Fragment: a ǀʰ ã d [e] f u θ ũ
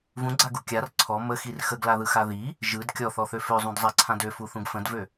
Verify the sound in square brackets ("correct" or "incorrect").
incorrect